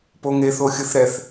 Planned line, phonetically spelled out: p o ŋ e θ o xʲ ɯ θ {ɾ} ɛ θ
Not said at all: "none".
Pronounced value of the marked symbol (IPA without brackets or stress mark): ɾ